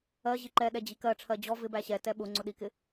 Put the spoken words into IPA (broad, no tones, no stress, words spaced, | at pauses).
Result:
ɜʑi ǃɛ ɗɛd͡ʑikɜʈ͡ʂʰɜ d͡ʑɔ vɪbæ ɕɛ tɛɓʊŋ͡ǀʊ ɗikɪ